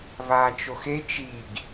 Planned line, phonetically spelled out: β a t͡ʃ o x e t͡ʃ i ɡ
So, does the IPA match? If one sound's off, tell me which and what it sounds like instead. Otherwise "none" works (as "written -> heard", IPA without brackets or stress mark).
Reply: none